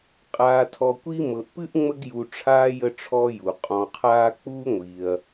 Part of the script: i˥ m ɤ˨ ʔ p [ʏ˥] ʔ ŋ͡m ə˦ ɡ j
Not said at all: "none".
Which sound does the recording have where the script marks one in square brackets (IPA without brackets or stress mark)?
ɨ˥